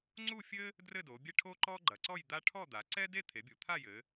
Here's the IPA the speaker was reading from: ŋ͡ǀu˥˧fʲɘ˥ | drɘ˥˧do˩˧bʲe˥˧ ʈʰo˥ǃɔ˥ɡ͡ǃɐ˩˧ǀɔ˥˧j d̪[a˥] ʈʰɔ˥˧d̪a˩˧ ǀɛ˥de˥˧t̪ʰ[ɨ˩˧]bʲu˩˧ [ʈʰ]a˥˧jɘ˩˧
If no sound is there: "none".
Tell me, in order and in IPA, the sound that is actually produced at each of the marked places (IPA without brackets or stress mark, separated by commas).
a˥, e˩˧, t̪ʰ